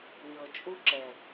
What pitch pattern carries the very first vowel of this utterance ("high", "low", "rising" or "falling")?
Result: low